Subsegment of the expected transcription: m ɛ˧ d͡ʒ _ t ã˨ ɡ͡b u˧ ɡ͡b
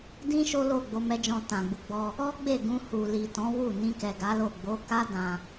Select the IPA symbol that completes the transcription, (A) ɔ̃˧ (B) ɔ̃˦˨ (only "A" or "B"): A